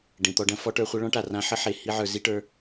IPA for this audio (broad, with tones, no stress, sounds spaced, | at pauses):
ɖ ẽ˨ t̪ ɔ˧ ɖ ɐ̃˦ f ɔ˦ ʈ ə˞˧ χʷ ɐ˦ ɭ ɔ̃˦ ʈ a˨ r ã˧ ħ ə˦ ħ e˨ h i˧ ʕ ə˞˨ z i˦ ʈ ə˞˧